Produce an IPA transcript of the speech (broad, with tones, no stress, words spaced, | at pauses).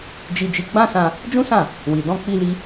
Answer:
d͡ʒi˧d͡ʒi˧ ɡ͡bã˦sã˧ | d͡ʒũ˦sã˦˨ | wi˨ dɔ̃˧ k͡pi˧li˧